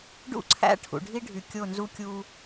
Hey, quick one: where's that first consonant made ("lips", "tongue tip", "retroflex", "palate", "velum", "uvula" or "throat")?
retroflex